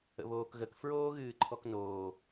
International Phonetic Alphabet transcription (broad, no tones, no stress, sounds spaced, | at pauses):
ə̰ β oː k ɣ ə k f ɹ oː ɣ ɨː ǃʰ ɔ k n oː